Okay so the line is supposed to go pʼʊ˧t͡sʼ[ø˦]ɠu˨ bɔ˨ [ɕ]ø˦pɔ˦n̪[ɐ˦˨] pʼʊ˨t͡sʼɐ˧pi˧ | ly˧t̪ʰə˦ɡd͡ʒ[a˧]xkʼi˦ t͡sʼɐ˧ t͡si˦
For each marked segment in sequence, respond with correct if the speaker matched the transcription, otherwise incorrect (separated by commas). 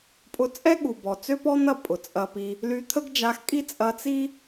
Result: incorrect, incorrect, correct, correct